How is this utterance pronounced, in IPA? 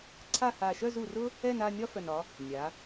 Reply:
ǀʰa˦˨ha˨˩ ʃœ˦˨zu˨˩rʊ˦ | ɛ˦˨na˦˨ nʲɒ˦fœ˨˩nɒ˩˧ | nʲa˩˧

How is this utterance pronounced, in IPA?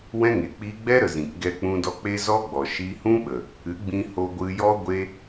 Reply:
wɛ̃˦ŋe˨ k͡piː˧ɡ͡bɛ˦ɾə˨ zĩ˨k ɡɛ˧k͡pũ˧dɔ˧k͡pe˦ zɔ˦ɡ͡bɔ˨ ʃi˧hũ˦ ɓə˨ | ɨ˨˦ ɡ͡bĩ˧ho˧ ɡʷɨ˧jɔ˦ ɡʷe˧

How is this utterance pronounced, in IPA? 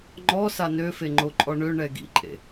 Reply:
ŋ͡ǃɔ sanøfe ŋ͡ǃoǃʼɔɳøɳɛ ɡḭǃʼḛ

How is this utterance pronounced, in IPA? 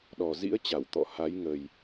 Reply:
ɗɔ˨˩zḭ˧˥ə̯ t͡ɕa˧˩wt̪ɔ̰˧˨ha˨˦j ŋə˨˩j

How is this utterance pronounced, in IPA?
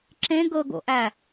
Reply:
ǁẽ ɡɤɡo̰ʔæ

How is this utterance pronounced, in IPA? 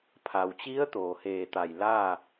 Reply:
pʰa˩wt͡ɕi˧˥ə̯ t̪oː˩heː˧˩t̪a˧˩j laː˥˨

